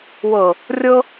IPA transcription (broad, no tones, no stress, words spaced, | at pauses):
wɤ | rʲɤ